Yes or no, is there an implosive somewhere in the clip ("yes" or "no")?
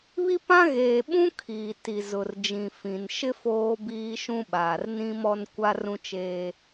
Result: yes